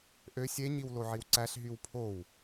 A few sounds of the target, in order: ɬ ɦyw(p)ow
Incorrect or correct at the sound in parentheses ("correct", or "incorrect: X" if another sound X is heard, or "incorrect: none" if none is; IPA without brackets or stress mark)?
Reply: incorrect: pʰ